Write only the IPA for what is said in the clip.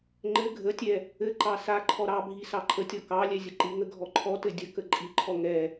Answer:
ŋ͡ǃ ɘ ɡʱ ə tʲ ɛ | ɘ ǃ ɑ s a ǃʰ ɔ ɾ ɑ bʱ i s ɑ ǃʰ ə tʲ ɔ k ɑ lʲ ɛ zʲ ə ǃ i ŋ ə ɡʱ ɔ ǃʰ ɔ t ɘ dʲ ə k ə ǃʼ i ǃʰ ɔ ŋ ɛ

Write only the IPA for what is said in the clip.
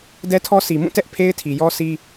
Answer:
d ɛ˦ tʰ ɔ˦ s i˨ m ũ˦˨ t ɛ˦ ʔ pʰ e˦ ɪ̯ tʰ i˨ j ɔ˦ sʰ i˦

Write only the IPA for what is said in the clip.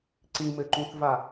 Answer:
ǀ ĩ m ɘ ǃ ũ θ v a

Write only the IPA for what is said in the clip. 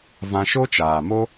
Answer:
v ã˧ ʃ o˦ t͡ʃ aː˨ m o˦

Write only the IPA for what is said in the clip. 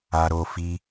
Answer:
a˧ ɾ oː˧ f i˧

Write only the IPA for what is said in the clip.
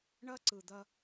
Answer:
ɳ ɐ˦ ǀ ɯ˨ d̪ ɐ˦

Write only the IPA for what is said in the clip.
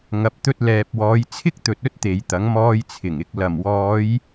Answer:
ŋ ɐ˧ p̚ t̪ ɵ˥ t̚ l ɛː˧ p̚ w ɔː˨˧ j t͡sʰ ɪ˥ k̚ t̪ ɵ˨ t̚ ɵ˥ t̚ t̪ e˨˧ j t̪ ɐ˨˥ ŋ m ɔː˧ j t͡sʰ ɪ˨˩ ŋ ɪ˨ k̚ l ɐ˨˩ m w ɔː˨˧ j

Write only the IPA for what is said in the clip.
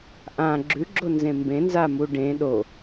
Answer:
ʔ ã ɡ͡ǁ ʉ ɡ͡ǁ o n z ẽ m b ẽ n z a m u ɖ ẽ ɗ o

